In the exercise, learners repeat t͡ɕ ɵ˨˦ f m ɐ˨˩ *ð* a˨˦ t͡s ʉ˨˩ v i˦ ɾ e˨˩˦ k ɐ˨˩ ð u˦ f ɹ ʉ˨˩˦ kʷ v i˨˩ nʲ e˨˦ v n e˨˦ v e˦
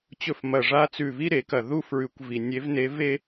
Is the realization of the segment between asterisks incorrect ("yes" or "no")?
yes